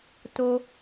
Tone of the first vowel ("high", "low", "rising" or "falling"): high